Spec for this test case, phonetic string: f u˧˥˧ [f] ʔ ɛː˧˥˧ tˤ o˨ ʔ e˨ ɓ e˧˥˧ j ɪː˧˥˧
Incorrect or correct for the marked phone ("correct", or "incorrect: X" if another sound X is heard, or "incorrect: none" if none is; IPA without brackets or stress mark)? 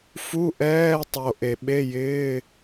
incorrect: none